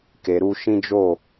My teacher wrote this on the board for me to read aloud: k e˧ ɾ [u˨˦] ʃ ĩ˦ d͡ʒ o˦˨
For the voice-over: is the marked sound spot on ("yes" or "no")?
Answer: no